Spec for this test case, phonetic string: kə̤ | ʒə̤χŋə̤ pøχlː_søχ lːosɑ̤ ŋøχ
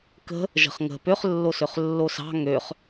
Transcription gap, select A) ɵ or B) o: B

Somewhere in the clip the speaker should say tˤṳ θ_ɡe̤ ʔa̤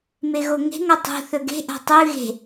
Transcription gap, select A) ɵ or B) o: A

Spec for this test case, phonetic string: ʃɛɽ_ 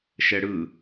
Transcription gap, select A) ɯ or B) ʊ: A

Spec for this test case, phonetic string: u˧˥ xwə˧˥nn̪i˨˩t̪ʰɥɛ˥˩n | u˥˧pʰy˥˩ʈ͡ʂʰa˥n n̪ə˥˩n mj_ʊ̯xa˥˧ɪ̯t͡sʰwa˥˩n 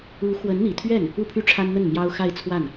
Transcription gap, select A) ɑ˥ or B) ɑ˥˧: A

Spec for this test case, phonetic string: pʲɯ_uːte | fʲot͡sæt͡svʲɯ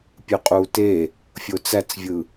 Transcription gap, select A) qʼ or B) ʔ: A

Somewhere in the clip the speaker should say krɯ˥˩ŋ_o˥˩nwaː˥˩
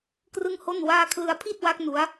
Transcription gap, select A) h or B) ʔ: A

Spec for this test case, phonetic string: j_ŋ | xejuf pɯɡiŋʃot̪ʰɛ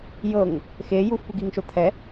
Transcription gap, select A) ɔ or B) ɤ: B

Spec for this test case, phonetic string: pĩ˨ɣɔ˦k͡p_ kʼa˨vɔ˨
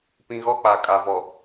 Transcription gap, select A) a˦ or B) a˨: B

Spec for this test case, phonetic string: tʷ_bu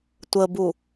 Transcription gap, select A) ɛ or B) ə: B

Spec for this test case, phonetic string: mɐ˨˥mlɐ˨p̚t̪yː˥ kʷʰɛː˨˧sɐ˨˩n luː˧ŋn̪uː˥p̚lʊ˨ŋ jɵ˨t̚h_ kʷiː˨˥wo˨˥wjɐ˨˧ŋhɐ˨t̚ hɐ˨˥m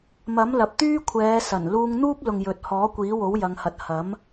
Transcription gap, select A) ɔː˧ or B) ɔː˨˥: B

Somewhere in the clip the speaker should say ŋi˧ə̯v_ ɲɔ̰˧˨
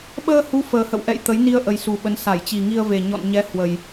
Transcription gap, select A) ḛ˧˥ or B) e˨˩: B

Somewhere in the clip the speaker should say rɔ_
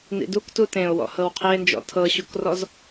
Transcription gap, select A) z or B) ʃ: A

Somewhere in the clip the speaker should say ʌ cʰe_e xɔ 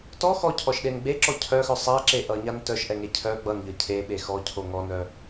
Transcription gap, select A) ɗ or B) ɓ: B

